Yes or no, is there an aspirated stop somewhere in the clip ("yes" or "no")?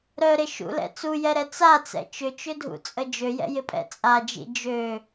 no